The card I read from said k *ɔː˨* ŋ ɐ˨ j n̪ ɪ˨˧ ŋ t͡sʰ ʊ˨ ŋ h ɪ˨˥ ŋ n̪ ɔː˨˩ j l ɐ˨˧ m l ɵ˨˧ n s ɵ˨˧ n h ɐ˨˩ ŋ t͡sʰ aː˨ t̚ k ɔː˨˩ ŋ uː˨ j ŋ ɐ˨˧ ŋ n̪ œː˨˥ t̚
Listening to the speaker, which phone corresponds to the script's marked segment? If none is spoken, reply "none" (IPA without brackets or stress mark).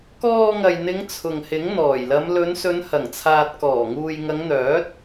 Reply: ɔː˧